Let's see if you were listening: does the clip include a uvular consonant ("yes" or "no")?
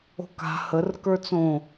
no